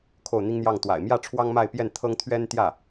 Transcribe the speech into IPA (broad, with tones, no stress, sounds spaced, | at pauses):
kʰ o˥˩ ʊ̯ n̪ i˥ ŋ n̪ j ɑ˥˩ ŋ t̪ w a̰˨˩ ɪ̯ m j ä˥˩ ʈ͡ʂʰ w ɑ˥ ŋ m a˥˧ ɪ̯ p j ɛ˥˩ n t̪ʰ ɤ˥ ŋ t̪ʰ ɥ ɛ˥ n t̪ j ä˥˩